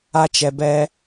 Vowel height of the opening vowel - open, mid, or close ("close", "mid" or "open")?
open